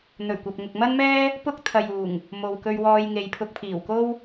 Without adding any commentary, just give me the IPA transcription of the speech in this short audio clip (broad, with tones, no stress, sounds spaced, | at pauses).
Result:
n̪ ɵ˨˩ ɥ kʷ ɐ˨ p̚ ŋ ʊ˨ k̚ m ɐ˥ n m ɛː˥ | p ʊ˥ k̚ t̪ʰ ɐ˨ j uː˨˩ ŋ | m o˨ w k ɵ˧ ɥ w ɔː˧ j ŋ e˨ j pʰ ʊ˧ k̚ pʰ iː˨˩ w k o˥ w